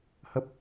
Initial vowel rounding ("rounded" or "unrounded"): unrounded